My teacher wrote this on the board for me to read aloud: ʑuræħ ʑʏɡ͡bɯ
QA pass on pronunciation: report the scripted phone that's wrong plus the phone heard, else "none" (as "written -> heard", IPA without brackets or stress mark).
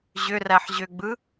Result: u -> ʏ